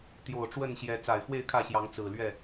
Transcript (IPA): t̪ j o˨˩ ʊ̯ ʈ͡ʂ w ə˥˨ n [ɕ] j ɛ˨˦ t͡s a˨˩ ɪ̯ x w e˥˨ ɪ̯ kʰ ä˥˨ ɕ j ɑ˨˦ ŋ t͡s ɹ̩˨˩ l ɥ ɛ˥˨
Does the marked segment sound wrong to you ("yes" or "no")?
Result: no